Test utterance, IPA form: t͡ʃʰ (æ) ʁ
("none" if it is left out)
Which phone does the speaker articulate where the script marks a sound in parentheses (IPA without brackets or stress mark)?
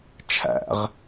æ̰